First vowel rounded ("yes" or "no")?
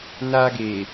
no